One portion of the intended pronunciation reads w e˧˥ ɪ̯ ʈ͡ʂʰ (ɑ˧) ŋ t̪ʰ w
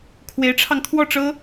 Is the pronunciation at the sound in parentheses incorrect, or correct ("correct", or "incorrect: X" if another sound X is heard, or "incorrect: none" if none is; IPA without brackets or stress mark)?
correct